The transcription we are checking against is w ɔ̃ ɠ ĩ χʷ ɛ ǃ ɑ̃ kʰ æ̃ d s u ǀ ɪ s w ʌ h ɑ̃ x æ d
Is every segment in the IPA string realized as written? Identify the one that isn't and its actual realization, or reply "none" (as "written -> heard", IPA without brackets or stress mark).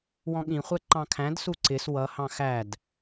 none